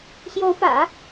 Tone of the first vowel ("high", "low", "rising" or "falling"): rising